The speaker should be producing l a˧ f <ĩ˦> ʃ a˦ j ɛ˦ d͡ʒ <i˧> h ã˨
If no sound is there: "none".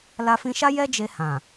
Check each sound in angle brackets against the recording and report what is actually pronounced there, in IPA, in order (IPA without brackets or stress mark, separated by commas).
ĩ˧, e˧